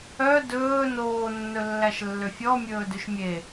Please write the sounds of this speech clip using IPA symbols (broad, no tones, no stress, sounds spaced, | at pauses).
œ d ɵː n oː nː ɵ lː æ ʃ lː ø fʲ ɔ mʲ ɵː d ʉ ʃ mʲ e